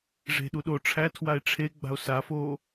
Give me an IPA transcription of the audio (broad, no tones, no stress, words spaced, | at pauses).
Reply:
ʐe̤ɗu ɗo ʈ͡ʂʰætʰwae̯ ʈ͡ʂʰe ɡ͡ba̤o̯safoː